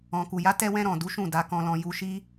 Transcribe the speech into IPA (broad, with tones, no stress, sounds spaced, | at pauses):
ɔ̃˨ k u˨ j a˨˦ t ɛ˧ w ɛ̃˧ ɾ ɔ̃˨ d u˨˦ ʃ ũ˦˨ d a˨˦ k ɔ̃˧ l ɔ̃˧ j u˧ ʃ i˦